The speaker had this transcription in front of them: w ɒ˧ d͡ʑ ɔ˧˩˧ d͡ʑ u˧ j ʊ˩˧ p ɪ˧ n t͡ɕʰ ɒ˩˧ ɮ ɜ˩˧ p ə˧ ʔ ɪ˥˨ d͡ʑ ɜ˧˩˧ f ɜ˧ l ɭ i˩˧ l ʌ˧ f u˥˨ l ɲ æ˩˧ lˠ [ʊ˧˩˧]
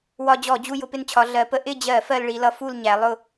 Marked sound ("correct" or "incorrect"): incorrect